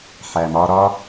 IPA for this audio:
ħ æ˨ m ɒː˧ ɾ ɒ˦

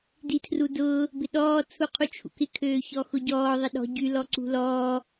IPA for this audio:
d i tʰ r u d ʊː | b ɪ ɗ ɔː t͡sʰ u qʰ u t͡ʃʰ ṵ k ɪ kʰ øː ç ɔ x ʊ ɟ ɔː ðˤ ɪ ɗ ɔ̤ ɟ y l ɔ ǀ ṳ l ɔː

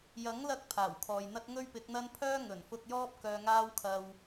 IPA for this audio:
j ɐ˨˥ ŋ l ɐ˧ k̚ pʰ aː˨˩ w kʰ ɔː˨ j n̪ ɐ˥ t̚ ŋ ɵ˥ ɥ p ɪ˨˥ k̚ n̪ ɐ˥ n pʰ œː˥ ŋ ɵ˨˩ n f ʊ˧ k̚ j ɔː˥ p̚ k œː˧ ŋ aː˥ w kʰ ɐ˧ w

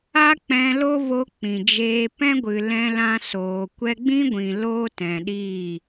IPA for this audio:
a˦ k͡p ɛ̃˧ l o˦ v o˧ k͡p ĩ˨ d͡ʒ eː˧ p ɛ̃˦ ɡʷ ɨ˨ l ɛ̃˧ l ã˧ s oː˨ kʷ ɛ˧ ɡ͡b ĩ˦ ɡʷ ĩ˨ l oː˦ t ɛ̃˨ ɗ iː˦˨

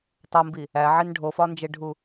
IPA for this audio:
tˤ o m b i | æ ʕ i n ɖʱ o f ɒ n d͡ʒ e ɖʱ u

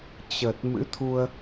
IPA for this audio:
t͡ɕ ə˨˩ t̚ m ɨ̰˧˥ t̪ʰ u˧ ə̯

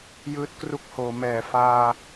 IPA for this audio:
j ɯː˦˥ t̚ k r u˦˥ k̚ h oː˩˦ m ɛː˨˩ f aː˧

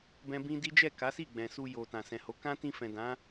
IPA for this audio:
b ɛ̃˦ b ĩ˦ d i˦ d͡ʒ ɛ˦˨ k a˨˦ s i˦˨ ɡ͡b ɛ̃˨ s u˧ j o˨ t ã˨ s ɛ̃˨ h o˨˦ k ã˦ t ĩ˧ f ɛ̃˨ d ã˨˦

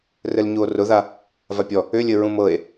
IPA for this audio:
r ɘ l ɲ u o̯ r ʊ ð a | v a pʲ ɔ | ʏ lʲ ɘ ɹ ũ m ɤ e̯

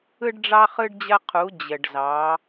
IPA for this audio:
ɯ˧ ɖ ɖ͡ʐ ɑ˧ χ ɯ˧ ɖ d͡ʑ ɐ˧ qʰ u˩˧ d͡ʑ ə˩ ɖ z ɑ˩˧

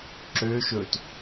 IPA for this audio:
ǁ ø ʃ ɵ t

